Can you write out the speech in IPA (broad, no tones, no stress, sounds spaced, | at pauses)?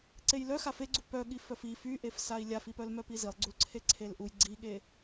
ǀ e j l œ x a f e ɡ͡ǀ u p œ ɠ i f œ f i f y ʔ e f s a i̯ lʲ a f i p œ l m œ p i z i lˠ ɡ͡ǀ u l ǀʰ e ǀʰ e l ʔ u j ɡ͡ǀ i ɠ e